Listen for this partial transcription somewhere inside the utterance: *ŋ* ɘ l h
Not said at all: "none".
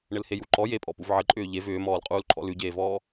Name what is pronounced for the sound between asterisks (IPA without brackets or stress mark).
ɳ